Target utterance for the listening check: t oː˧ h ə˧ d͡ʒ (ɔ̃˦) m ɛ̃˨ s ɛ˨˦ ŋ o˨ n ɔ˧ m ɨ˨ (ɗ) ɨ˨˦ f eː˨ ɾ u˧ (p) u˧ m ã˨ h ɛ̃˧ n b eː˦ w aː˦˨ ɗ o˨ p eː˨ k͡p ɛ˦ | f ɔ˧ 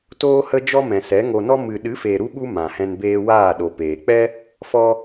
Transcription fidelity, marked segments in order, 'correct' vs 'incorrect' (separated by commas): incorrect, correct, incorrect